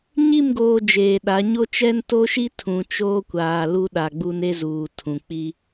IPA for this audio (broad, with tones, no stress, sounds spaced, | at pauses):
ɲ i˦˨ m ɡ oː˨ d͡ʒ eː˨ ɗ a˨˦ ɲ o˦ t͡ʃ ɛ˦ n t o˦ ʃ i˦ tʰ ũ˨ t͡ʃ oː˦ kʷ aː˨ l u˦ ɗ a˨ ɡ͡b u˦ n e˦ z uː˨ tʰ ũ˨ k͡p i˦